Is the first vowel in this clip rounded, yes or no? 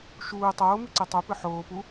yes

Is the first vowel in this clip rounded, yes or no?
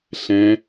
no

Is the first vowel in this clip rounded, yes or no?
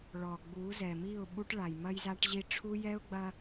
yes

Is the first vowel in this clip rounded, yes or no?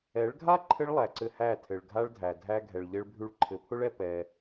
no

